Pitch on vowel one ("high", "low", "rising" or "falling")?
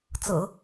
low